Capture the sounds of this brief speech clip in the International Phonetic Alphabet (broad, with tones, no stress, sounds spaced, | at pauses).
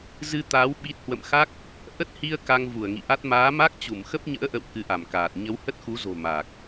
z ɨ˧ t̪ aː˨˦ w ɓ i˦˥ t̚ h w ə̰˧˨ m x a˦˥ k̚ | ʔ ə˦˥ t̚ h i˧ ə̯ k a˧ ŋ v u˧˩ ə̯ ŋ ḭ˧˨ ʔ a˦˥ t̚ m aː˨˦ m a˦˥ k̚ t͡ɕ u˧˩ m x ə˦˥ p̚ ɲ ə̰ː˧˥ ʔ ə̰˧˨ w k ɨ˨˦ ʔ a˧˩ m k aː˨˩ t̚ ɲ ə˨˦ w h ə˦˥ t̚ x u˨˦ z o̤˨˩ m a˨˩ k̚